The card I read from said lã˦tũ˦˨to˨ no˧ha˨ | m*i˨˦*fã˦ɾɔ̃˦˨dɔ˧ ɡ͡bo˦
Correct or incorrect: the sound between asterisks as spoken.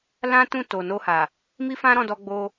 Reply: incorrect: i˦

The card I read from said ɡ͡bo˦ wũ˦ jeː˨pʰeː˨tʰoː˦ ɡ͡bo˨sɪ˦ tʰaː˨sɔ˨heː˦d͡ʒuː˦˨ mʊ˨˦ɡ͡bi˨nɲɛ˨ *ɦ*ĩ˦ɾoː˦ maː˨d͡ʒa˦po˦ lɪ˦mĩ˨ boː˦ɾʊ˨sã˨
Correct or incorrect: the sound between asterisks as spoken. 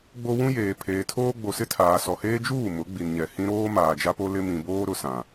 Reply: incorrect: h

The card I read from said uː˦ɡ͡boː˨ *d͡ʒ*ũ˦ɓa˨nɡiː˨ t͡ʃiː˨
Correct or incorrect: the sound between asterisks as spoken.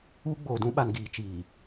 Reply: incorrect: d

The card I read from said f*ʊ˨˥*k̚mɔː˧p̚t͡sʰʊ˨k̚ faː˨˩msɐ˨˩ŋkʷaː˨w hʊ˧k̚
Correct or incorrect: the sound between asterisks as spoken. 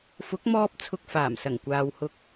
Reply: correct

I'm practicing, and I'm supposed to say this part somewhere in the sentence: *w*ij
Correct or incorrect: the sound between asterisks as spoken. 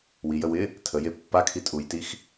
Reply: correct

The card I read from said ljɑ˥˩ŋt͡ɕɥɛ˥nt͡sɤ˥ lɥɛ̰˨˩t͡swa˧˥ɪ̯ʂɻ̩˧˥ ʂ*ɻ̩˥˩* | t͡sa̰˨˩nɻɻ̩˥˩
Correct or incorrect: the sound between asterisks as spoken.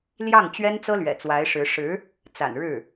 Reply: incorrect: ɻ̩˧˥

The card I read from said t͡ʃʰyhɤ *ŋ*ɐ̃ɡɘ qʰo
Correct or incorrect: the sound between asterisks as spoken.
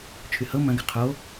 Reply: incorrect: m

